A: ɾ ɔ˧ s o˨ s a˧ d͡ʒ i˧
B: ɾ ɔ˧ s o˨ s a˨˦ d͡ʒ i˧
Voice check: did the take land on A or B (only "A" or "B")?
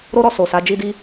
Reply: B